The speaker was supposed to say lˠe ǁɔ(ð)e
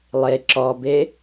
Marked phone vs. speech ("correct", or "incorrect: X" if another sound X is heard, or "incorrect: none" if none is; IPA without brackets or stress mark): incorrect: b